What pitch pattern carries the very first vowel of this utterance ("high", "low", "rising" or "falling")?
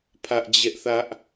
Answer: high